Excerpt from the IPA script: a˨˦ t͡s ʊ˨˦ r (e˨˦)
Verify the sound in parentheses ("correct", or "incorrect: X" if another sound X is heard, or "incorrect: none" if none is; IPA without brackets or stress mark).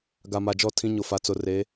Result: correct